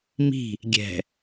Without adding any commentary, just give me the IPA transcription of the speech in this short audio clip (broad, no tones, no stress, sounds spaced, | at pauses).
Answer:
m i̤ | ɡʲ ɛ̤